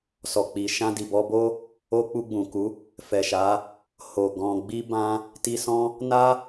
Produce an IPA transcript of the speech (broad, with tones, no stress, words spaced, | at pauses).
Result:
sɔ˨k͡pi˨ʃã˧ di˨bɔ˧bo˦ | o˧ k͡pu˧ɡ͡bũ˨ku˨˦ | fɛ˨ʃa˨˦ | ho˨ ɡɔ̃˨ɡ͡bi˧ bã˧ | ti˧sɔ̃˦ | na˦